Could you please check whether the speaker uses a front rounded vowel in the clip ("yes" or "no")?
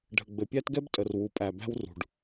no